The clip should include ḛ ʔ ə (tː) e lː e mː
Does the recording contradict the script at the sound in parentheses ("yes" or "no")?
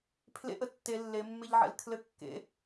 no